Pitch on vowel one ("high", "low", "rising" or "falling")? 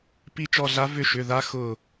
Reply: falling